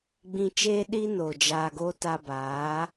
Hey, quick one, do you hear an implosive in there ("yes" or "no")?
yes